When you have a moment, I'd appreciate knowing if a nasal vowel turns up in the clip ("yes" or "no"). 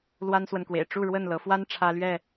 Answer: no